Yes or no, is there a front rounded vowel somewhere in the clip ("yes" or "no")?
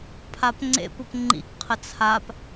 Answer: no